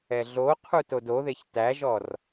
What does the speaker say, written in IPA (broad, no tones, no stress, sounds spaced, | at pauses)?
ɛ ɮ o qʰ u t o d o ð e ç t æ ʒ ɔ r